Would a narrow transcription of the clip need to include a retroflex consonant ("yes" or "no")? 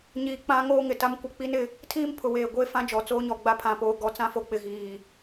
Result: no